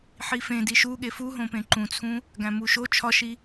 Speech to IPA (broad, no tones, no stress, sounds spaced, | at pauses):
ħ i f ẽ d i ʃ u ɠ e f u ɦ õ p ẽ ǃ ũ t͡sʰ ũ | ɡ æ̃ m u ʃ o t͡ʃʰ ɒ ʃ i